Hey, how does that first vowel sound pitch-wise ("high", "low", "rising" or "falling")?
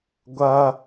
high